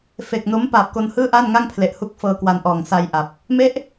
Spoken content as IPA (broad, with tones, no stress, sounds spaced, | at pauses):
f e˨˩ k̚ n o˦˥ m p aː˨˩ p̚ k o˧ n h ɯː˥˩ ʔ aː˥˩ n ŋ a˥˩ ŋ pʰ l e˨˩ ʔ h u˥˩ k̚ f ɤː˧ k w a˧ n ʔ ɔː˨˩ ŋ s a˧ j ʔ a˨˩ p̚ | m e˦˥ ʔ